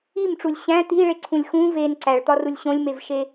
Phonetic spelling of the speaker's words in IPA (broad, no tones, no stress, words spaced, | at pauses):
imʈ͡ʂulʲ ɕæ̃ t̪iɭeǀʰũlʲ xũ ven ǀæɭt̪ɒrulʲ ɕõlʲmevʃe